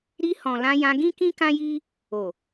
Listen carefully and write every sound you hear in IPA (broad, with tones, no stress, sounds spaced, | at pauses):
ɾ i˧ h ɔ̃˨ l ã˧ j ã˧ ɡ ĩ˦ k ĩ˦ k ã˦ j i˦ | o˨